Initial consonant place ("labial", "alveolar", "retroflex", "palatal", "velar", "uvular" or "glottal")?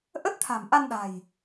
glottal